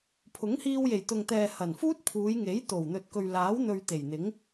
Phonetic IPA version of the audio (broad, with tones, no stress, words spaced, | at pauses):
pʰʊ˨˥ŋhiː˧wje˨˩j t̪ʊ˨ŋt̪ɛː˨ hɐ˨˩nfuː˥t̚pʰuː˨˧jŋe˨˥j t̪o˨˩w n̪ɵ˨t̚kɵ˨ɥlaː˨˥w n̪ɵ˧ɥt̪e˨˩jn̪ɪ˨˥ŋ